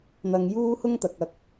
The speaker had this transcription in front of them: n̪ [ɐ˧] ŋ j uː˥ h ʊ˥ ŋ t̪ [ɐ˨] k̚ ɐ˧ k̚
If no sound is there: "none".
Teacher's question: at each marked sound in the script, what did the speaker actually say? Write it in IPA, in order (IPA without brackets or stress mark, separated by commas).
ɐ˧, ɐ˨